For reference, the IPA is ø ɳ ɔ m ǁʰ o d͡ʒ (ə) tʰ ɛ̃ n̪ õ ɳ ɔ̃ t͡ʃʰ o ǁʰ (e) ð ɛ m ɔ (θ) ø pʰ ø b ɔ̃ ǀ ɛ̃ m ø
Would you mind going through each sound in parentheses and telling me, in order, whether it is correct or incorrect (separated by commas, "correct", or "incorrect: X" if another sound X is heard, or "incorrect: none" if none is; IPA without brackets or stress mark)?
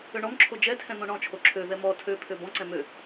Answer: incorrect: ɛ, incorrect: ø, incorrect: tʰ